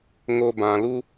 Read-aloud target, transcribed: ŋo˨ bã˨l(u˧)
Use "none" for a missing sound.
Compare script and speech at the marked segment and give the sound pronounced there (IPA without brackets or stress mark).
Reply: u˧